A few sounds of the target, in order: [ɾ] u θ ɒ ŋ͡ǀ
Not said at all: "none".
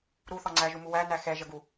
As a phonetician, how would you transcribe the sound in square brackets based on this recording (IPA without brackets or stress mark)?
ɾ